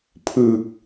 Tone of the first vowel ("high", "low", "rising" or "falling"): low